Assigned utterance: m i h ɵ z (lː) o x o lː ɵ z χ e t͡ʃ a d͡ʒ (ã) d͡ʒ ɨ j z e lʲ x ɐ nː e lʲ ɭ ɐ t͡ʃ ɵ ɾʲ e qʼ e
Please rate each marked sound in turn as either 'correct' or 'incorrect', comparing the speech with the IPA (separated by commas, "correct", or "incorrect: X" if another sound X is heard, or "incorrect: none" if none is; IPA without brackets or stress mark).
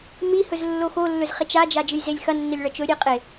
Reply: correct, incorrect: a